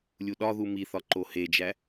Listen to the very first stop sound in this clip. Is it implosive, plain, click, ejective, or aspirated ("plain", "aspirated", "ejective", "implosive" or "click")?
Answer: implosive